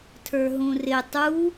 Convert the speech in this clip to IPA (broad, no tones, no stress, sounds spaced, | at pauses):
tʰ ə˞ ɦ ũ r ɪ tˤ u